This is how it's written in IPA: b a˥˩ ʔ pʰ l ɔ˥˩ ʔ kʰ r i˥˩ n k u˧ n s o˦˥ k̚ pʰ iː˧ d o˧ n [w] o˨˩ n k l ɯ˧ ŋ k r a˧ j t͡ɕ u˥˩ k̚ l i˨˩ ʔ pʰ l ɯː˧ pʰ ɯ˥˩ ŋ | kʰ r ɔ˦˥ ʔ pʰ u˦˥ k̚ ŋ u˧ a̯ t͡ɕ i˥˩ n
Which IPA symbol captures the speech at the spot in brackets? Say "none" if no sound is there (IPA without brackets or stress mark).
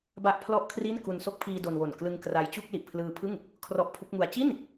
w